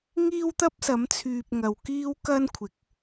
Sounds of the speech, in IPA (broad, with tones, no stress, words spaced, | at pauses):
ŋiː˥wt̪ɐ˥p̚sɐ˨˥mt͡sʰyː˨p̚ ŋɐ˨wkiː˥wkɐ˥nkʷʰɪ˨˥k̚